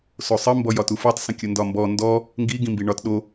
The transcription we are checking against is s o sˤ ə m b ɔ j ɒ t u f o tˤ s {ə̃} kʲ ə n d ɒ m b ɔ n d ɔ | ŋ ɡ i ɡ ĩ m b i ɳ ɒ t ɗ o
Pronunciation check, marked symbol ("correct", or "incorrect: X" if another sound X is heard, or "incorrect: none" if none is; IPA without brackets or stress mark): correct